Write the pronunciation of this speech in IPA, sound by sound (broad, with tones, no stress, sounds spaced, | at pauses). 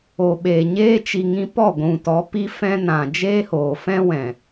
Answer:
o˨ ɓ eː˨ ɲ eː˧ t͡ʃ i˨ ŋ ĩ˧ p ɔ˦˨ ɡʷ ũ˨ t ɔ˨˦ p i˦ f ɛ̃˦ n ã˨ d͡ʒ eː˦ h oː˨ f ɛ̃˦ w ɛ̃˨